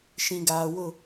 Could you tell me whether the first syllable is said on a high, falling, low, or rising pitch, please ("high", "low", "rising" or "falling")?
low